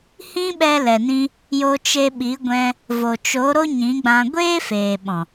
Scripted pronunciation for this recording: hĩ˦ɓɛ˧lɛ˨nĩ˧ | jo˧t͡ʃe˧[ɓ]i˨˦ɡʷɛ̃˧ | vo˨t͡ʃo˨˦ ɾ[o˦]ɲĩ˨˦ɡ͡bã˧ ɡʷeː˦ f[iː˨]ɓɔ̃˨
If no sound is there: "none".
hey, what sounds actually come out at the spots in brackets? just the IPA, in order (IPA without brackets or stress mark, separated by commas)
ɓ, o˦, eː˨